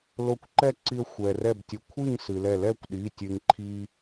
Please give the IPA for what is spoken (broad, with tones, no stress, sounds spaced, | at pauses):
l o˧ kʷ ǃ ɛ˥˨ ǀ i˧ ə̯ xʷ ɛ˩ r ɛ˧˩ b tʲ ə˩˧˩ kʷʰ i˥˨ ŋ s ɨ˩ l ɛ˧˩ l ɛ˥˨ kʷ ɗ i˩˧˩ tʲ ɨ˩ ŋ ǃʰ i˧